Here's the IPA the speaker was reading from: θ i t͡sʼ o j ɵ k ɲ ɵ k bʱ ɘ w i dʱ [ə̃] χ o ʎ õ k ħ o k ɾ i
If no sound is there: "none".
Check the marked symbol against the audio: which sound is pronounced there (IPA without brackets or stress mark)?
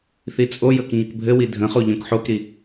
ə̃